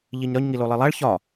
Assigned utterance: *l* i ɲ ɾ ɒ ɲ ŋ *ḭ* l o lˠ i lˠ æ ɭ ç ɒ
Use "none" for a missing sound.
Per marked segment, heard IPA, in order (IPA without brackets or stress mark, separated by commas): ʎ, i